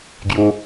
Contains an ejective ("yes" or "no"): no